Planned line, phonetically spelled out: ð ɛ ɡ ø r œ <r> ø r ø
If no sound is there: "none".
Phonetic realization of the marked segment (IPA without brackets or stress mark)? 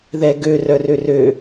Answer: r